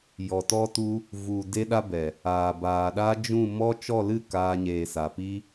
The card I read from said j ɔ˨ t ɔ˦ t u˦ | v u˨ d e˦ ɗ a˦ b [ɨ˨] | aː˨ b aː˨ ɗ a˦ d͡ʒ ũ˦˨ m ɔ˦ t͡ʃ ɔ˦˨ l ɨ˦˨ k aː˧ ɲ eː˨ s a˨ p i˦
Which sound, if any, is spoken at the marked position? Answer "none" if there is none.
ɛ˨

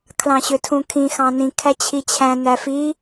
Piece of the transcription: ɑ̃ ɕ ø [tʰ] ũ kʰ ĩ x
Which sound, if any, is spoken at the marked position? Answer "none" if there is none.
tʰ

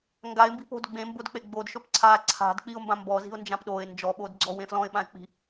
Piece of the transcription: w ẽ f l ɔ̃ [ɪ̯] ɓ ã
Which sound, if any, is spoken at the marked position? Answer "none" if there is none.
ɪ̯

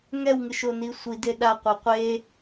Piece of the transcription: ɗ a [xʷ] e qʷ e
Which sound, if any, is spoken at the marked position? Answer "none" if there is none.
qʷ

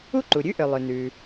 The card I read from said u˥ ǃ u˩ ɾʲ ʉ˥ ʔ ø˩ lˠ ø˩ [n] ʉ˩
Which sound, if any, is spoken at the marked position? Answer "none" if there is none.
n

